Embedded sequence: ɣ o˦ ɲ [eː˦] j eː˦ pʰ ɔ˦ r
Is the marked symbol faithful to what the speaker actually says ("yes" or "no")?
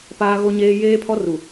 yes